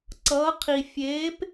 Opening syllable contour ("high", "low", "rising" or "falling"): rising